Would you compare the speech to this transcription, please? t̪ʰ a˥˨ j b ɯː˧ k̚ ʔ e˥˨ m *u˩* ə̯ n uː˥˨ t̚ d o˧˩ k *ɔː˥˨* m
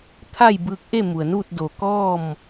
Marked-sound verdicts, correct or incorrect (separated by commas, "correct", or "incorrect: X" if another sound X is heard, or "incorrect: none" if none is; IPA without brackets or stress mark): correct, correct